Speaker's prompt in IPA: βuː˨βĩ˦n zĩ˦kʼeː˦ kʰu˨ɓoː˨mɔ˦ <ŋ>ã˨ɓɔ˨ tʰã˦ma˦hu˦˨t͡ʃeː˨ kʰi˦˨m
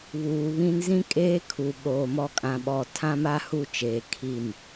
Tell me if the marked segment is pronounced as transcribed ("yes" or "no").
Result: no